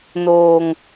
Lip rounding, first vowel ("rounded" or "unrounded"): rounded